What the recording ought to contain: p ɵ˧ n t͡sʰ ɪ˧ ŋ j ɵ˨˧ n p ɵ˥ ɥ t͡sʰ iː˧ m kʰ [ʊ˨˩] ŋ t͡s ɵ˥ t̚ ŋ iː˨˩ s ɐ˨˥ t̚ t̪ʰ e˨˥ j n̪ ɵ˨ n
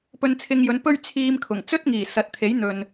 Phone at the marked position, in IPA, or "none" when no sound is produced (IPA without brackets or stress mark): ʊ˨˩